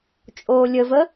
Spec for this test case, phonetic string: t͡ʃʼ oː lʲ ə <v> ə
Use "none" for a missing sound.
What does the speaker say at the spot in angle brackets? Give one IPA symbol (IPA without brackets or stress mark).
v